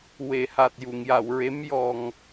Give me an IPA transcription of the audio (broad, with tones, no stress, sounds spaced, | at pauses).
w e˨˩˨ h a˨˩ t̚ j u˨˩˨ ŋ j a˨˩˨ w ɹ e˧˥ m j ɔ˧ ŋ